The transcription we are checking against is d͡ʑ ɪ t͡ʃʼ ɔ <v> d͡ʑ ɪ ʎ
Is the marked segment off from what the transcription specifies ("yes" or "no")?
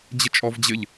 no